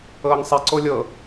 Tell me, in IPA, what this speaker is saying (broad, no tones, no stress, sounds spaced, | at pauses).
ɤː ŋ sˤ i ǀ o lʲ ɤ